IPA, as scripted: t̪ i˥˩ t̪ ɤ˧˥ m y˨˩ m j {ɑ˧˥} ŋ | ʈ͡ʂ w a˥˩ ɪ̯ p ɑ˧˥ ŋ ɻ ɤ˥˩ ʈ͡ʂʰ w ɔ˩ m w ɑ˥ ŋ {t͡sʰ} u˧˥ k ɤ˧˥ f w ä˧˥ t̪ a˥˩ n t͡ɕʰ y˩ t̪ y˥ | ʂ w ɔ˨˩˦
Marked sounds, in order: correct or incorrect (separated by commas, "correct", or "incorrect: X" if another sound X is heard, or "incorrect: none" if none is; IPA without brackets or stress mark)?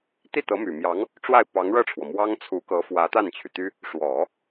correct, correct